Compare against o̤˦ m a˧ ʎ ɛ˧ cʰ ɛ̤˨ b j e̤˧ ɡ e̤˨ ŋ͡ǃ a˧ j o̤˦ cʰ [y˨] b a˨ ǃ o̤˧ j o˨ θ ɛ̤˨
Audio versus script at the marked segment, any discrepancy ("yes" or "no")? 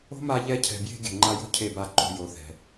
yes